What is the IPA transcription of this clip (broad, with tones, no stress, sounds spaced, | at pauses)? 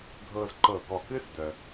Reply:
ɡʱ ɤ˧ z ǃ ɤ˧˩ ɡ ɔ˧˩ k ɨ˥ s d œ˧